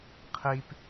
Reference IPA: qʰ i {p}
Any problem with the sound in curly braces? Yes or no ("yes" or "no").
no